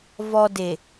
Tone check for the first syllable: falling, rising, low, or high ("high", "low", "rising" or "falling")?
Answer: low